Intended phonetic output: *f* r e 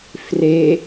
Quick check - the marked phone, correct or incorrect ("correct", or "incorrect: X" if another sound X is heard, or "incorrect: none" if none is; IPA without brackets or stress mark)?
correct